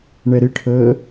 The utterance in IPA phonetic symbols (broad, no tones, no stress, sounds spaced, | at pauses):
ɳ ɛ ɾ ɪ ʈʰ əː